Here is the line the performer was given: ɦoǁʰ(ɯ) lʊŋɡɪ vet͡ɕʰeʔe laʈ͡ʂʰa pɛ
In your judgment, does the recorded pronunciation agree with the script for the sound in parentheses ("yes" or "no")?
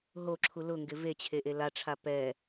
no